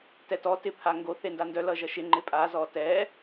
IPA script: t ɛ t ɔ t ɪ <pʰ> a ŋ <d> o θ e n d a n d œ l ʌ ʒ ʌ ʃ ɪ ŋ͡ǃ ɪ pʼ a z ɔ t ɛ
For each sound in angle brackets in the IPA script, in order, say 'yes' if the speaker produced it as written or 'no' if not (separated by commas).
yes, no